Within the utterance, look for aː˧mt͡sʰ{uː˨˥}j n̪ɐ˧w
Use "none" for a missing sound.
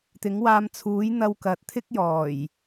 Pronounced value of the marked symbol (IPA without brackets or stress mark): uː˨˥